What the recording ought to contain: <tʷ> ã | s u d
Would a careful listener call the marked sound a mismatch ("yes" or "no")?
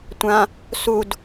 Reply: no